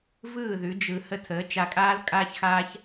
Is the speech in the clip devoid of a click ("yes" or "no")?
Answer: yes